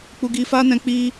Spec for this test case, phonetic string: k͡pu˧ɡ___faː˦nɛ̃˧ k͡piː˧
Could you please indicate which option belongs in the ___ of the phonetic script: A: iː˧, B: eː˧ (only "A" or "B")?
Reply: A